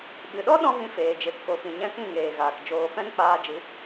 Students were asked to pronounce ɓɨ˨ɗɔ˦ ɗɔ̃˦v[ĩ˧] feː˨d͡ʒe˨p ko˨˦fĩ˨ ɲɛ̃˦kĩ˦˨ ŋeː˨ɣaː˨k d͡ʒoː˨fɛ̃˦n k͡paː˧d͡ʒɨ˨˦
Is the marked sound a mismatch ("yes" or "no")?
no